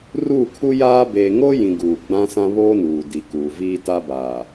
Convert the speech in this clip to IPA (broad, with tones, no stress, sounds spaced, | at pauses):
r uː˦˨ kʰ u˦ j aː˦ b eː˨ ŋ o˦ j ĩ˨ ɡ uː˨ ɡ͡b ã˦ s ã˦ β oː˦ n uː˨ d i˨ k uː˨ v iː˦ t a˦ b aː˨